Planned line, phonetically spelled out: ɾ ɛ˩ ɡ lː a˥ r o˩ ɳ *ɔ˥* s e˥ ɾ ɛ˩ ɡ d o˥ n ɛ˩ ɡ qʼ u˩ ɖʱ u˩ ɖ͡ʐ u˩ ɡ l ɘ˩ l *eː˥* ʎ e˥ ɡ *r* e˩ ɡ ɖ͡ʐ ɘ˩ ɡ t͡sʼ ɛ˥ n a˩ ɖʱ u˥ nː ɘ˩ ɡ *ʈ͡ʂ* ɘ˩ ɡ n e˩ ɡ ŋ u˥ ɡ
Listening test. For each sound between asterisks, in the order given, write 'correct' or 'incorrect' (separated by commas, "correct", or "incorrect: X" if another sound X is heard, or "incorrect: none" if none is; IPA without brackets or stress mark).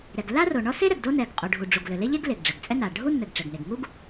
correct, incorrect: e˥, incorrect: l, correct